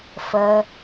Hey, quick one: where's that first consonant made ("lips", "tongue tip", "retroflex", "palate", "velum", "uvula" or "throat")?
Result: lips